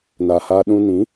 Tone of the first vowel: low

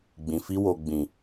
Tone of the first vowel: low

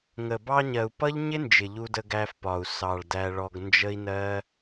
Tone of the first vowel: low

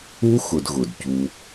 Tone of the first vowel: high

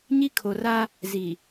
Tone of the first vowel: high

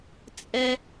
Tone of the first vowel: high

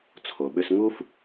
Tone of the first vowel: low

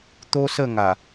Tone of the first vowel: high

